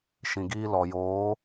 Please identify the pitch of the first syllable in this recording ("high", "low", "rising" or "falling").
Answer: low